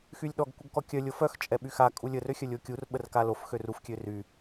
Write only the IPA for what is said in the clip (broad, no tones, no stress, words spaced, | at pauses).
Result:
xylʲɗɔɡ kʷəɡkɔkʲœ lʲofœx t͡ʃʼɛɓyxa kʼulʲə røxʲœlʲokʲur ɓərkalof xøruf kʲøry